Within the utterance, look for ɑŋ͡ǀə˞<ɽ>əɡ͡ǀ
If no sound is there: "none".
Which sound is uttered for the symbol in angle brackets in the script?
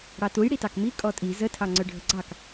ɖʱ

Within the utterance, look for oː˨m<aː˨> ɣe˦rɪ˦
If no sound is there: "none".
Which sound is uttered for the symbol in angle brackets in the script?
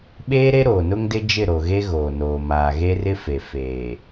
aː˨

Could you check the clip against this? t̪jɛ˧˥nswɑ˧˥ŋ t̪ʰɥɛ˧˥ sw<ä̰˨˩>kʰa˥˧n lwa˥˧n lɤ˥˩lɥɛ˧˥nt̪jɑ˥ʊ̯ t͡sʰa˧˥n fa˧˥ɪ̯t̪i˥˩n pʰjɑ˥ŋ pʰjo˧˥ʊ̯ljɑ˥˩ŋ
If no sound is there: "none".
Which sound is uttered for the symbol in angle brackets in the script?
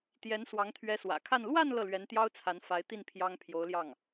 ä̰˨˩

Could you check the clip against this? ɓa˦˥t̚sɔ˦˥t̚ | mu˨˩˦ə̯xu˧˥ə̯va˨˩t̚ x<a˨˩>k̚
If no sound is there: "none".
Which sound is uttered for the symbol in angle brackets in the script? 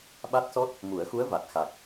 a˨˩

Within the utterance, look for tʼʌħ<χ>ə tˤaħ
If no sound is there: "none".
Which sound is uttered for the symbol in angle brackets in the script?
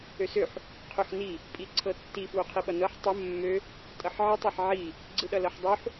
ʕ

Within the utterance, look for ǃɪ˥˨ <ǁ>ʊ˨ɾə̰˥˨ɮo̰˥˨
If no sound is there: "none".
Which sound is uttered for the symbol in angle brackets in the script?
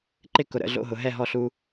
k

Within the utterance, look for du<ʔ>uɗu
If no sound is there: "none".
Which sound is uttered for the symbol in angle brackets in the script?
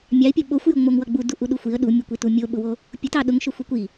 ʔ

